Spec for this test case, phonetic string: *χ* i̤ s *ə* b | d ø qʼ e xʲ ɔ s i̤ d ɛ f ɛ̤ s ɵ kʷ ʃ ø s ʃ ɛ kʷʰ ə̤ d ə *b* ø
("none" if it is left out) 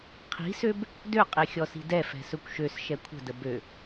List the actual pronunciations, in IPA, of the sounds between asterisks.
qʰ, ø, b

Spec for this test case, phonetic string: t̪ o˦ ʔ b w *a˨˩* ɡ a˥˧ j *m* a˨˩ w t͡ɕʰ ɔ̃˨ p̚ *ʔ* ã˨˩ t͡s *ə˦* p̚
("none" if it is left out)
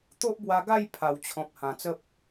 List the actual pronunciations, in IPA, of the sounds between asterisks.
a˧, pʰ, h, ə˦

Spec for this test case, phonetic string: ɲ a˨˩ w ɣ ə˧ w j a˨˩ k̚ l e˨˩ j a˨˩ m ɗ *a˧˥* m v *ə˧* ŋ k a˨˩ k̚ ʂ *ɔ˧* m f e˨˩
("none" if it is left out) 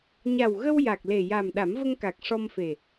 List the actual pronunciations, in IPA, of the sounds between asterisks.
a˨˩˦, ə˧, ɔ˧

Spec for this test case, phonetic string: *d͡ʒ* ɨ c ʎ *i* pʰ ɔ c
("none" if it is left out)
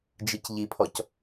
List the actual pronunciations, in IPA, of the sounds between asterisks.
d͡ʒ, i

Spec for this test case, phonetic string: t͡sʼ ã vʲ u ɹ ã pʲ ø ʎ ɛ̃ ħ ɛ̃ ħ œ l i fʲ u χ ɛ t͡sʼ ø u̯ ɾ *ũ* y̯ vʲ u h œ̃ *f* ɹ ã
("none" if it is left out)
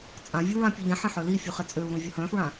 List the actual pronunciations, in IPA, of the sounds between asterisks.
ũ, f

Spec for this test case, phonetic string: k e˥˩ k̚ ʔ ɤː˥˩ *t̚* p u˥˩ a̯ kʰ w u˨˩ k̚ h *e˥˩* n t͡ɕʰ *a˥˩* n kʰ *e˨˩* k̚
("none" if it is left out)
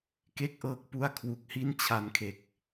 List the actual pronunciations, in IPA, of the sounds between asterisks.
k̚, i˥˩, a˧, e˨˩

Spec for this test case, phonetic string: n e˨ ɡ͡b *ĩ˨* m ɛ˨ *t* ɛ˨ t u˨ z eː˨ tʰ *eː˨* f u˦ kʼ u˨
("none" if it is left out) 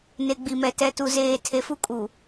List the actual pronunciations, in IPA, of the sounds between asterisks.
i˨, t, e˨

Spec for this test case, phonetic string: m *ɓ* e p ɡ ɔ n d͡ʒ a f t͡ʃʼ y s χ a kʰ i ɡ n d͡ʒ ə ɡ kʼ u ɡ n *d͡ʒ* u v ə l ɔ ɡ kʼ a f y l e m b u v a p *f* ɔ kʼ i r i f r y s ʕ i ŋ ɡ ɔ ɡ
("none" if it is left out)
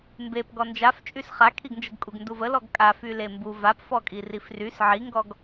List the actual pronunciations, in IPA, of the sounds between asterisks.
b, d, f

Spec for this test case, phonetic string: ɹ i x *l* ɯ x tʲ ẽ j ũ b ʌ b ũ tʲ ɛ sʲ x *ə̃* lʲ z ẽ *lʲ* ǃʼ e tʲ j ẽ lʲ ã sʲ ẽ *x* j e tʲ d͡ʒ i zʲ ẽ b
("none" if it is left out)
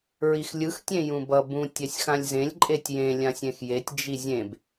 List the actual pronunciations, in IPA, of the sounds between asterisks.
lʲ, ã, lʲ, x

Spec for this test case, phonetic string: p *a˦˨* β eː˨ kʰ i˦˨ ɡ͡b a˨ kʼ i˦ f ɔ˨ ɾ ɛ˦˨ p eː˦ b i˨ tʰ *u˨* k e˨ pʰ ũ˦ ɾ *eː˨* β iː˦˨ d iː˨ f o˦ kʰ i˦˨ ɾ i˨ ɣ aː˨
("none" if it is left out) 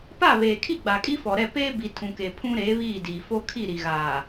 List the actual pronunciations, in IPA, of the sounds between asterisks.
a˦˨, ũ˨, eː˨˦

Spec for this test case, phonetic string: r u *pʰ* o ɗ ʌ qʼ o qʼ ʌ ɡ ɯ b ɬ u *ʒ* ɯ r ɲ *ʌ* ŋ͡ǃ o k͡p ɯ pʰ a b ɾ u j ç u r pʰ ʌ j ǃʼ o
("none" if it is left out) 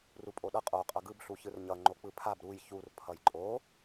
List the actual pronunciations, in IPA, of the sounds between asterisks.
pʼ, ç, ʌ

